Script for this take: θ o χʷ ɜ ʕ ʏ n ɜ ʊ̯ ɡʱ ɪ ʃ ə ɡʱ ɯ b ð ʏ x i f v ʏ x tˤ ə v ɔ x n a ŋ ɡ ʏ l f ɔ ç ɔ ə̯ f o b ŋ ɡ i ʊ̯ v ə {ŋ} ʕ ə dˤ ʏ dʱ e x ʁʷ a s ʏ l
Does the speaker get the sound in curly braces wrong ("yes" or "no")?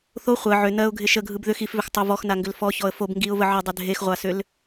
yes